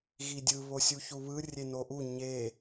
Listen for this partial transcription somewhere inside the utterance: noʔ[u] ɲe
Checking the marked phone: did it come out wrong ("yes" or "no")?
no